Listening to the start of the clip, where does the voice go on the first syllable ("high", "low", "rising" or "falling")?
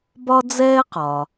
high